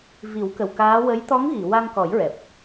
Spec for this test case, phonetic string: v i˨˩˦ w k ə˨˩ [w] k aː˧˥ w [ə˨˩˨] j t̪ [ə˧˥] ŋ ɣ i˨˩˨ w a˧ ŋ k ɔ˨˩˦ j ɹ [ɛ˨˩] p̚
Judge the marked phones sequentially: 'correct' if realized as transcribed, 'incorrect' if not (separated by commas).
correct, incorrect, incorrect, correct